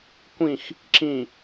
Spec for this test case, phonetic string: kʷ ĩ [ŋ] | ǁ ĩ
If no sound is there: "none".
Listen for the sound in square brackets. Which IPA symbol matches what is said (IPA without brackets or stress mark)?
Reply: x